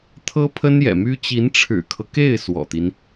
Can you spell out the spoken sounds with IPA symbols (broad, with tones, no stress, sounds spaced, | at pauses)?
t̪ʰ ɤ˥ pʰ ə˥ n j ɛ̰˨˩ m y˥ t͡ɕ i˧˥ n ʈ͡ʂʰ ɻ̩˨˩ kʰ ɤ˦ k e˥˩ ɪ̯ s w ɔ̰˨˩ t̪ i˦ n